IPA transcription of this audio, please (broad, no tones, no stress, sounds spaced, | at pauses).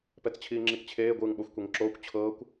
p ɛ t͡s t͡ɕʰ iː ŋ͡ǁ i k t͡ɕʰ eː ɡʷ ɯː ŋ ɓ o xʷ kʷ e ŋ ǁ oː kʷ t͡ɕʰ ɤː kʷ